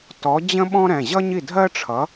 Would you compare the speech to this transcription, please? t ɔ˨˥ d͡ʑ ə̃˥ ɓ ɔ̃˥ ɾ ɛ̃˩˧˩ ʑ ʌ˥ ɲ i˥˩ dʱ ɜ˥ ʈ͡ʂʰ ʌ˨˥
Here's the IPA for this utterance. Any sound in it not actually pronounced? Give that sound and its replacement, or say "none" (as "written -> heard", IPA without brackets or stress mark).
none